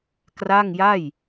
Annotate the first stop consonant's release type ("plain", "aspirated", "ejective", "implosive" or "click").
plain